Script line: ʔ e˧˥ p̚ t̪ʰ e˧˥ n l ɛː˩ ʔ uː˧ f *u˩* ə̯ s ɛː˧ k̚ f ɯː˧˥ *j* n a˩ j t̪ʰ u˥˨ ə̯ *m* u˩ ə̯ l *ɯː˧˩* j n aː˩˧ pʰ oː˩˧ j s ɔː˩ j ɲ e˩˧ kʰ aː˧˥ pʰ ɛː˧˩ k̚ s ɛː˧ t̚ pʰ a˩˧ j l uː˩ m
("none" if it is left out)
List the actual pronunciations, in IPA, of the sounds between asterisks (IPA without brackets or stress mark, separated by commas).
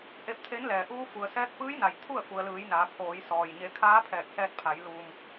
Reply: u˩, j, f, ɯː˩˧